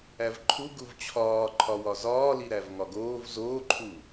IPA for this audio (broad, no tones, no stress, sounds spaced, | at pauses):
æ v ǃʰ u ɡ u v t͡ɕʰ ɒː ǃʰ ɒ w ɒ z ɒː l i ɾ æ v ŋ ɒ ɡ oː v z oː ǃʰ u